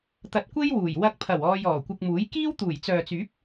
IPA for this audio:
t̪ ɐ˨ t̚ kʷ e˥ j w uː˨˩ j w ɐ˧ k̚ pʰ ɐ˨˩ w ɔː˧ j ɔː˨˩ kʷ ɪ˧ k̚ m uː˨˥ j k iː˥ w t̪ uː˨˩ j t͡s œː˨ t͡s yː˨˥ p̚

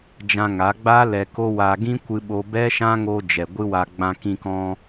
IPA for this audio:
d͡ʒ ã˧ ŋ a˨˦ ɡ͡b a˦ l ɛ˧ k o˦ w a˧ ɡ ĩ˦ kʷ ɨ˧ ɓ o˧ b ɛ˦ ʃ ã˦ ŋ o˧ d͡ʒ ɛ˨ ɡʷ ɨ˦ w a˧ ɡ͡b ã˧ k ĩ˧ k ɔ̃˧

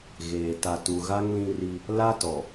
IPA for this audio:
ɣ eː˨ t a˨ t u˨ ɣ a˦ ŋ l ĩ˦ r i˦ | l a˦ t ɔ˨

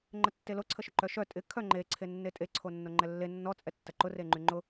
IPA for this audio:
ŋ͡ǃ ə tː e l o ǀʰ ə ʃ ʊ ǃ œ ʃ œ tʼ ɪ kʰ œ ŋ͡ǃ e ǀʰ e nː e tʼ e ǀʰ o nː o ŋ͡ǃ ɛ lː e nː ɔ t͡sʼ ɛ tː ɐ ǃ ʊ r e ŋ͡ǃ y ŋ͡ǃ ʊ

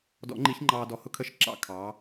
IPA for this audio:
d ɔ̰˨˩˦ ŋ͡ǃ i˨˩˦ ç ŋ͡ǃ ɑː˨ d ɔ˨ h ʊ˥ kʰ ə˦˨ ʃ ǁ ɑ̰˦˨ kʰ ɑ˩˥

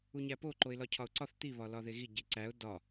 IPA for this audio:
u ɲ æ p o ǃ o ɪ̯ l ɒ cʰ ɒ ʊ̯ ǀ ɒ θ t̪ i β ɒ l ɒ ð e ɣ i ɟ i ǀ æ ʊ̯ d ɒ

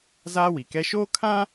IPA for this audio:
z aː˦ w i˨ k ɛ˦ ʃ oː˦ kʰ ã˦

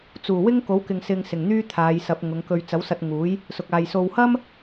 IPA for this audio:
t͡s uː˨˩ w ɪ˥ ŋ k o˨˥ w k ɪ˨ ŋ s ɪ˧ ŋ s ɪ˨˩ ŋ n̪ yː˥ t̪ʰ aː˨˧ j s ɐ˨˥ p̚ ŋ ʊ˨˧ ŋ k ɵ˧ ɥ t͡s ɐ˨˥ w s ɐ˧ t̚ ŋ uː˨˥ j | s ʊ˨ k̚ aː˨ j s o˨ w h ɐ˥ m

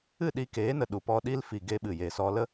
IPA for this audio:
ɨ˦˨ ɗ i˧ k eː˨˦ n ə˨ ɗ u˨ p ɔ˧ ɗ i˦ l f i˨ ɡ e˧ ɓ ɨ˨ j e˨ s ɔ˧ l ə˦

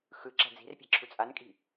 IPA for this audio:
x ɯ ǁ a̤ d͡z i̤ r pʲ a̤ ǁʰ u t͡sʼ a n kʼ i̤

